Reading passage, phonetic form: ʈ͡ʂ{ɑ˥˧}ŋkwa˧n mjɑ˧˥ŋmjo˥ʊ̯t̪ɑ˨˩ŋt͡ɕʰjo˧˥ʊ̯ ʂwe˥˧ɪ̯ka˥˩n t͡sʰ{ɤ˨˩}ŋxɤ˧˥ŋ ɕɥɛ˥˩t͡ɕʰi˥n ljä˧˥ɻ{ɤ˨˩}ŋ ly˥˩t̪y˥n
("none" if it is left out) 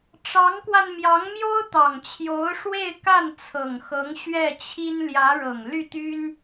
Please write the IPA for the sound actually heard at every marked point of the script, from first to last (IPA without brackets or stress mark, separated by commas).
ɑ˧˥, ɤ˨˩, ɤ˨˩